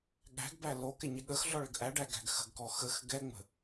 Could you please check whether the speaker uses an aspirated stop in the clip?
no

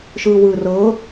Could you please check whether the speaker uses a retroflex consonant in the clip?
no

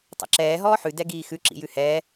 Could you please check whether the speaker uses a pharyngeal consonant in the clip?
yes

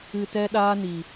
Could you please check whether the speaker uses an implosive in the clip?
yes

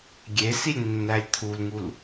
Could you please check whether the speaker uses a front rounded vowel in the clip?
no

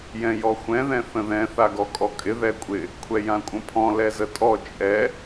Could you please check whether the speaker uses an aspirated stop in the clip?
yes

